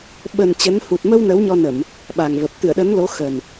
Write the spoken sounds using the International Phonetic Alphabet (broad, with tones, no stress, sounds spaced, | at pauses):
ɓ ə˨˩ n t͡ɕ ə˨˦ n h u˨˩ t̚ m ə˧ w n ə˨˦ w ɲ ɔ˧ n ə˧˩˨ m | ɓ a˨˩ ŋ v ə˨˩ p̚ t̪ ɨ˧˩ ə̯ ɗ ə˨˦ n l o˨˦ x ə˨˩ n